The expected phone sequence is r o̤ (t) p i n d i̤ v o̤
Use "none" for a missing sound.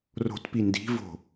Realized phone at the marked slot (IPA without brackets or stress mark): t